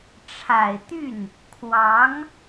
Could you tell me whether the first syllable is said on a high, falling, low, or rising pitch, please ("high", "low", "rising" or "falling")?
low